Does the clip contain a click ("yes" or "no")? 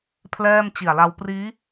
no